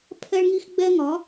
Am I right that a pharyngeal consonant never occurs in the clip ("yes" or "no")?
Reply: yes